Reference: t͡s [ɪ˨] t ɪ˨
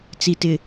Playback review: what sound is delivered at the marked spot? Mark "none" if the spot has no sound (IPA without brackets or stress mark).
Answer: i˨